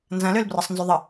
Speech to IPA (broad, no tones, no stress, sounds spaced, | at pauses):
n z ɐ̃ l ø l b r ʌ sˤ n z y ðˤ ə